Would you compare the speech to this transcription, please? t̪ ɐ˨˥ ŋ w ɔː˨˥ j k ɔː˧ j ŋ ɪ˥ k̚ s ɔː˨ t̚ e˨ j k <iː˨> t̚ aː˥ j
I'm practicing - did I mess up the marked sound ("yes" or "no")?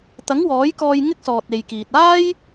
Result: no